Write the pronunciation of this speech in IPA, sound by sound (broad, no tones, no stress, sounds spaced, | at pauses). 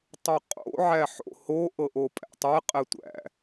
tˤ o qʼ o̰ ʕ æ ħ o̰ h o ʔ ɤ ʔ o pʼ æ̰ tˤ ɛ qʼ ɛ tʷ æ̰